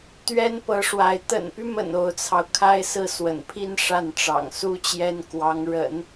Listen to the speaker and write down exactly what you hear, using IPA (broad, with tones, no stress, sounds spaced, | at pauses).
t̪ ɥ ɛ˥ n p ɤ˧˥ ʂ w a˧˥ ɪ̯ t̪ ə̰˨˩ n p y˦ m ə̰˨˩ n o˧˥ ʊ̯ t͡sʰ ɑ˧ ʊ̯ kʰ a˥ ɪ̯ s ɹ̩˥˩ s w ə̰˨˩ n pʰ i˥˧ n ʂ a˥˩ n ʈ͡ʂ ɑ̰˨˩ ŋ s u˥ t͡ɕ j ɛ˥ n k w ɑ˧˥ ŋ ɻ ə̰˨˩˦ n